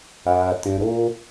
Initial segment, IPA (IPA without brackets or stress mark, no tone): aː